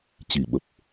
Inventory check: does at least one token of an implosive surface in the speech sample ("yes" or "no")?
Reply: yes